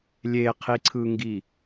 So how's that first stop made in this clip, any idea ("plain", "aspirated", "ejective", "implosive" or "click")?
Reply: aspirated